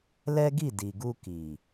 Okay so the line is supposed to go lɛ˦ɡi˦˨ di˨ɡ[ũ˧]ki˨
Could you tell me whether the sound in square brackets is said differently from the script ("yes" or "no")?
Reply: yes